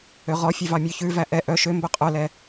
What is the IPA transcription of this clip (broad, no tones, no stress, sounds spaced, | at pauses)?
ø ʁ ɔ fʲ ɛ v ɑ mʲ ø ç ʉ v æ ʔ ɛ ʔ œ ʃ ø m b ɵ qʼ œ l ɛ